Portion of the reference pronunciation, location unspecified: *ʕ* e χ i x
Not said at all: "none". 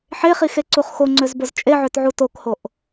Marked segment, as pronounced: ħ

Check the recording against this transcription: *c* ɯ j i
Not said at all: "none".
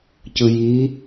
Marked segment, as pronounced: c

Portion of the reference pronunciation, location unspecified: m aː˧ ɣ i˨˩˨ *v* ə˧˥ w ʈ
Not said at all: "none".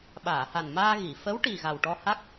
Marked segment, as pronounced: f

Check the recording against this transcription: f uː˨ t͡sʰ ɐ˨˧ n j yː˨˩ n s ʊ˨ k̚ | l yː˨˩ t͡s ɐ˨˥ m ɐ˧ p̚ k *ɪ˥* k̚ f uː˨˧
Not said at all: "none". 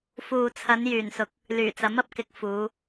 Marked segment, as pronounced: ɪ˧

